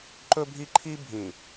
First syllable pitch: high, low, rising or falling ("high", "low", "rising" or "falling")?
high